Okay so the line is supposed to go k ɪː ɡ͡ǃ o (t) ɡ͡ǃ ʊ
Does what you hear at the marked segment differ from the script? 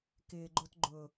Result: no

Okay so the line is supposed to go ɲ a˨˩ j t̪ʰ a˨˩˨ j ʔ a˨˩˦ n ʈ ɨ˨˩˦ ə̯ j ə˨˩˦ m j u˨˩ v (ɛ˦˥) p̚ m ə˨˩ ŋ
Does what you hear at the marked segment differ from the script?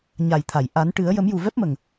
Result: no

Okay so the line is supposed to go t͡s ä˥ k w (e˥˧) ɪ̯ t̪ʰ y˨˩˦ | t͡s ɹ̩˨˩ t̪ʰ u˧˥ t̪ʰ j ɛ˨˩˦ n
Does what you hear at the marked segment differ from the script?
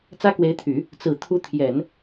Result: yes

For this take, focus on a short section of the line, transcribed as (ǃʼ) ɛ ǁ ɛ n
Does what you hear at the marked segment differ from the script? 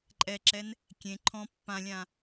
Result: no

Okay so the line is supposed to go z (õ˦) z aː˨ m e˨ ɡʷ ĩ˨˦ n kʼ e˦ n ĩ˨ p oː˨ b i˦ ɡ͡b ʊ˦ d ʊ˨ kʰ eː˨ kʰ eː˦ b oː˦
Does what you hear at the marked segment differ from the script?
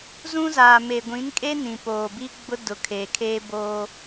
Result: yes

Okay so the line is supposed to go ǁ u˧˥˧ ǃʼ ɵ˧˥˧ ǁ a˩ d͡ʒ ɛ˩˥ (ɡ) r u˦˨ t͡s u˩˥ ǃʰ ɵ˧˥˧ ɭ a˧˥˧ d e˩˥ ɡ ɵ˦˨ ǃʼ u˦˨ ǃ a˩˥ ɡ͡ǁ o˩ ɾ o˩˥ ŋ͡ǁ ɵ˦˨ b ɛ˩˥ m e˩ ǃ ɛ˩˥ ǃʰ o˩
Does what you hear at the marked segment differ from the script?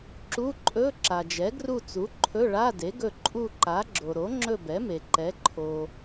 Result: no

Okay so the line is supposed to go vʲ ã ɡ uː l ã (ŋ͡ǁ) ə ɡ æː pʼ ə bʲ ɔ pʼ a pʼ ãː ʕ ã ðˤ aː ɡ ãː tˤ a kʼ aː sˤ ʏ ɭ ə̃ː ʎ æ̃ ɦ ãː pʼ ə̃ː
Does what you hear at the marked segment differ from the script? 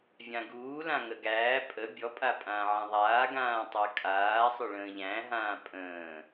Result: yes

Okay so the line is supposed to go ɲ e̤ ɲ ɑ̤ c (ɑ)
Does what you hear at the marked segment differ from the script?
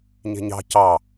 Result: no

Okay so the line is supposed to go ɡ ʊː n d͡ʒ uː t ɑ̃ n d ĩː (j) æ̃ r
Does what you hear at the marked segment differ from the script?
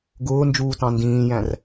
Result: no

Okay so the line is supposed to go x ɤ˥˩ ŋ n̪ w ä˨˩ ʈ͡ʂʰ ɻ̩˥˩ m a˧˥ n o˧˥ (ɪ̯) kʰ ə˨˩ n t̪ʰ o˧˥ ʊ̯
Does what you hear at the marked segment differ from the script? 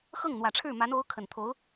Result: yes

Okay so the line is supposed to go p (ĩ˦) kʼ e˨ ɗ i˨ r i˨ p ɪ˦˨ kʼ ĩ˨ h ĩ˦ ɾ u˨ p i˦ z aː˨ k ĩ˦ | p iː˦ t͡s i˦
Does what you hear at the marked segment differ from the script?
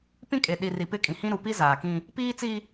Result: no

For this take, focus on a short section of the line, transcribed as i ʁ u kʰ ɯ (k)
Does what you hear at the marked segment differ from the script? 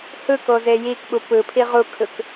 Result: no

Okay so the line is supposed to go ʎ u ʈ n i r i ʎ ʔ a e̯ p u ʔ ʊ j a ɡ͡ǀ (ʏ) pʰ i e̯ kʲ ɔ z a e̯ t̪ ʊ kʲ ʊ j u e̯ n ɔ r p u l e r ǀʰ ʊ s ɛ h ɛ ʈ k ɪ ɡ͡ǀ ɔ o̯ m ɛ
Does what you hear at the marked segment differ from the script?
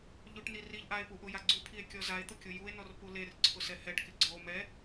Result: yes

